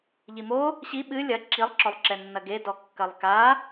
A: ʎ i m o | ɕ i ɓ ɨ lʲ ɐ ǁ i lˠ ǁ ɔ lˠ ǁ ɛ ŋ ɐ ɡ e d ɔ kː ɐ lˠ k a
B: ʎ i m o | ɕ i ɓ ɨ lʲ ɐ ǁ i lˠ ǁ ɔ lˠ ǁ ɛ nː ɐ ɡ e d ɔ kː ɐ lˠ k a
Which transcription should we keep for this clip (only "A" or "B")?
B